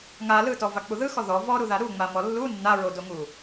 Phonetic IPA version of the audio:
ŋ a l ɯ t ɔ v a k͡p u ð ɯ x ɔ ð ɔ v ɔ ɾ u ð a ɾ u ŋ͡m a m ɔ lː u nː a ɹ o d o ŋ u

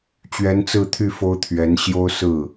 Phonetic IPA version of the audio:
t͡ɕ ɥ ɛ˧˥ n t͡s ɹ̩˥˧ t̪ʰ y˥˩ f o˥ ʊ̯ t̪ʰ ɥ ɛ˧˥ n ɕ j o˥ ʊ̯ s ɹ̩˥˩

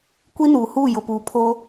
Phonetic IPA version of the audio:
kʷ i˦ n uː˨ h uː˦˨ j ʊ˨ p uː˨ pʰ o˦

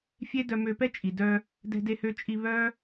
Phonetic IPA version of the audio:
fʲ e˦ d œ˧ m ø˧ p ɛ˦ t͡ʃʼ i˨ d œ˧ | d ɛ̤˧ d e˧ h ø˧ t͡ʃʼ i˧ β œ˦

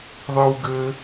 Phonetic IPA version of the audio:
ðˤ ɯ w ɡ ɘ

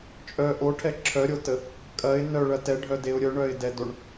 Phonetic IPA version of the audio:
t͡ʃʼ œ ʔ o ʈʰ ɛ ǁʰ œ ɾʲ o t ə | kʼ ɐ ɪ̯ n œ ɭ ɐ t ɛ ɖʱ œ d e ʊ̯ ɾʲ œ ɳ œ ɪ̯ d ɛ d o ɳ

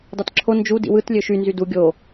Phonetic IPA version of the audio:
d ɑ t ǁʰ o n d͡ʒ u d ḭ w ɯ t lʲ ø ʃ y n z y d u ɡʲ o

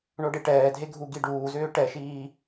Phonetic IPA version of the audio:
ɳ o ɖ e ʈ ɛː dʱ e ɡʱ u ɡ i ɖ uː z ʏː ʈ ɛ ʃ iː

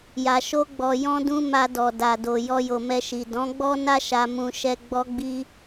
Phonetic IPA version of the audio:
j a˨ ʃ o˧ ɡ͡b ɔ˨ j ɔ̃˧ d ũ˧ m a˧ d ɔ˨ d a˨ d o˨ j ɔ˧ j o˨ m ɛ˧ ʃ i˨ d ɔ̃˨˦ ɡ͡b ɔ˦ n a˦ ʃ a˧ m ũ˧ ʃ ɛ˧ ɡ͡b ɔ˧ ɡ͡b i˧

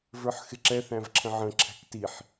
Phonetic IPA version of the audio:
v ə˞ ħ x ɪ ǁ ɛ θ æ̃ v ǁʰ ə̃ ʕ ə̃ ǁʰ æ̤ k t i ħ

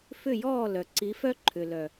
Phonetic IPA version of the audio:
f ʏ˦˨ j ɔː˦˨ l œ˨ ǀ i˨˦ f œ˦ ǃʰ ʏ˨ l œ˨

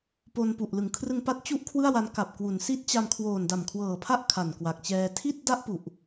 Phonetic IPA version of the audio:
p o˧ n p u˨˩ ʔ l ɯ˩˦ ŋ kʰ r ɯ˧ ŋ p a˦˥ t̚ t͡ɕ u˥˩ ʔ kʰ w ɯ˥˩ a̯ w a˦˥ n k a˨˩ p̚ k w u˩˦ n s i˦˥ t̚ t͡ɕ a˧ m kʰ w oː˨˩ n d a˨˩ m kʰ w ɤː˨˩ pʰ a˥˩ ʔ kʰ a˨˩ n k w a˨˩ k̚ t͡ɕ ɛː˧ tʰ i˥˩ t̚ d a˥˩ ʔ p u˨˩ ʔ

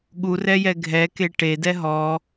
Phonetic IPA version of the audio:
ɠ u r ɛ j ɛ ɡʱ ɛ k e ʈ e d ɛ ɦ ɔ

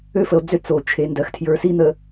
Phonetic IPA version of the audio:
ø˦ f ə˨ o̯ d͡z ø˦ t͡s o˨ t͡ʃʰ e˨ n d ɜ˨ x tʰ j ə˞˨ s i˦ n̪ ə˨

